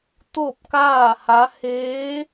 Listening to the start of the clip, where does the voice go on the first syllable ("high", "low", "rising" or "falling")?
falling